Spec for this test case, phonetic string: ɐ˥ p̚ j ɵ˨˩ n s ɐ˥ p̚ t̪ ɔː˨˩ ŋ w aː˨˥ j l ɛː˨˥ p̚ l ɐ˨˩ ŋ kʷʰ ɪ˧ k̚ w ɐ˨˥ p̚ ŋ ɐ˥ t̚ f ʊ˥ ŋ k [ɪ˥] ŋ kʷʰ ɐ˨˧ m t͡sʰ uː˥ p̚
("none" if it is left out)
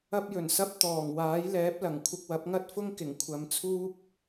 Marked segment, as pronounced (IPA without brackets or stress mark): ɪ˨˩